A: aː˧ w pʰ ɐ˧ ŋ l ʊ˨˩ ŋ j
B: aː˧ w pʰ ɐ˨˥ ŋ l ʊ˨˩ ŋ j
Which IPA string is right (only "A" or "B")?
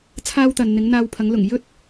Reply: B